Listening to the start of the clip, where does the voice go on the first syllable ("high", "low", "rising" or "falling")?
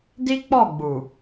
high